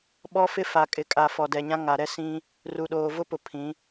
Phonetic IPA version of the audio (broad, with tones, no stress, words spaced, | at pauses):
ɓɔ˦fɪ˦ fa˨kʼɪ˨kʼa˨ fɔ˨dɛ˨ɲã˦ ŋa˨ɾɛ˦ sĩ˦ | ru˨ɗoː˨vʊ˦pʊ˨ pʰĩ˨˦